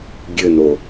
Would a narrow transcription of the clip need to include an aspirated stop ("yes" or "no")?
no